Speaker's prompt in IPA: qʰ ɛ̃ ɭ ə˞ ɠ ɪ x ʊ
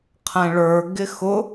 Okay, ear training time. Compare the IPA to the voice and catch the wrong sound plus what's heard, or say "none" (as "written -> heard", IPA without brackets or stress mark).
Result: ɠ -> ɡ